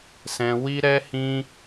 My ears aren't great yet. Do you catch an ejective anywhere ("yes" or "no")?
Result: no